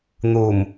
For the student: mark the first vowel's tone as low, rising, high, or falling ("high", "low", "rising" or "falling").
low